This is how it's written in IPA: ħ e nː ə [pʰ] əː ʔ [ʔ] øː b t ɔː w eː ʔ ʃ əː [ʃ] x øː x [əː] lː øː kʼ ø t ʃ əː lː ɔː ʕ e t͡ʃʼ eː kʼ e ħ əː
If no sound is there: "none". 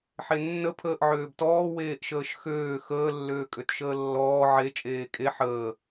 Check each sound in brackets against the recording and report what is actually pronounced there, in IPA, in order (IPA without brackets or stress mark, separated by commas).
pʰ, ʕ, ʃ, əː